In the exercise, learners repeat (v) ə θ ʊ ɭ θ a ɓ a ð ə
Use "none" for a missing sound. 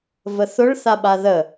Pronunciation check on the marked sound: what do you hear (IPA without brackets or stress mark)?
v